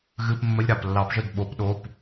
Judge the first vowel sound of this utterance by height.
high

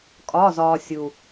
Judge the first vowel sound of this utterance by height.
low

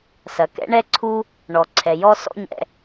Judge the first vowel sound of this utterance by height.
low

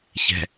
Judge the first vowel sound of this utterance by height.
mid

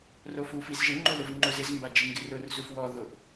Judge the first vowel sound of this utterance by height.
mid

